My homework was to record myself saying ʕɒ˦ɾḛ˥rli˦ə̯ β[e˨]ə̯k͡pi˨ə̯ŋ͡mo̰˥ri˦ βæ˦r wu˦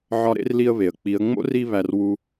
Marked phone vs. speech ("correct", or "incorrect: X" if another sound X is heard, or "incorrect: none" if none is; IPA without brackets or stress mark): incorrect: e˩